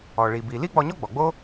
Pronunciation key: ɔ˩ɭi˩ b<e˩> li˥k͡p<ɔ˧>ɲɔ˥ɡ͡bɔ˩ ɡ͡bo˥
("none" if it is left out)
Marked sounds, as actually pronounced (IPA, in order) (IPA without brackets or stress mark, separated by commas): i˩, ɔ˧